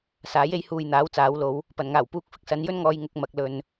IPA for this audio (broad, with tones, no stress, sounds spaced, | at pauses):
s aː˨˥ j e˨˥ j h uː˨ j n̪ aː˨˥ w t͡s aː˨˥ w l o˨˥ w | p ɐ˨˩ n ŋ aː˨˩ w p uː˧ k̚ f ɪ˨ k̚ s ɐ˧ n j ɵ˥ n ŋ ɔː˨˧ j ŋ ʊ˨ k̚ m ɐ˨ k̚ l ɵ˨ n